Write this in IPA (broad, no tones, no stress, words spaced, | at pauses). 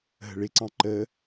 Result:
ɦə̤ɭɪǀɑ̃ ǃə